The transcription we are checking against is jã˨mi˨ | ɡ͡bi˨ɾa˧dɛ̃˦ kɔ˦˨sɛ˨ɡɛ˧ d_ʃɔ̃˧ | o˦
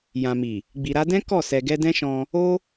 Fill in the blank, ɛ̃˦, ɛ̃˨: ɛ̃˦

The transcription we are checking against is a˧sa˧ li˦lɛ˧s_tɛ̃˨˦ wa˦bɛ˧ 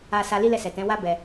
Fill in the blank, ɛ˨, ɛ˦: ɛ˨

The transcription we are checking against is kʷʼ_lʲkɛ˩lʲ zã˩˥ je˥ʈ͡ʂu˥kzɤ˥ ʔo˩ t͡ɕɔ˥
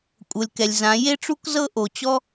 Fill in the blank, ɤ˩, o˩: ɤ˩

